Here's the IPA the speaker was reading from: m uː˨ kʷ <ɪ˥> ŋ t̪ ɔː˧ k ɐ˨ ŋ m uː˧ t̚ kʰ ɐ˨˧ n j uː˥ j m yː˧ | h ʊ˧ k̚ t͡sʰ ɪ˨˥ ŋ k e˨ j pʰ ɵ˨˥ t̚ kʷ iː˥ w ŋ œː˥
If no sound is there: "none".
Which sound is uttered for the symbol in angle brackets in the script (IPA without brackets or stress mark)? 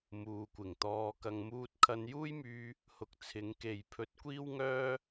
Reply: ɪ˨˩